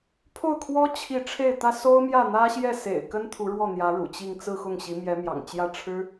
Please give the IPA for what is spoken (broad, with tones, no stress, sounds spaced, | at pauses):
pʰ o˥˩ ʊ̯ kʰ w ɔ˥ t͡ɕʰ i˥˧ ʈ͡ʂʰ e˥˩ ɪ̯ t̪ ä˥ s o˥ ʊ̯ m j ä˥˩ n̪ ä˥ ɕ j ɛ˥˩ s ḛ˨˩ ɪ̯ k ə˥ n t̪ʰ u˧˥ ɻ w ɔ˥˩ n̪ j ä˧˥ ɻ ṵ˨˩ t͡ɕ i˥˧ ŋ t͡s ɹ̩˥˧ x ʊ˥˩ ŋ ɕ i˧˥ m j ɛ˧˥ m j ɑ̰˨˩ ŋ t͡ɕ j ä˥˩ ʈ͡ʂʰ ɻ̩˥